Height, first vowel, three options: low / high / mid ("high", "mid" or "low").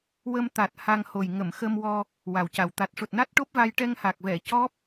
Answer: mid